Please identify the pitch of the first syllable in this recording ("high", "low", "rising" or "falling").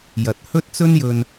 low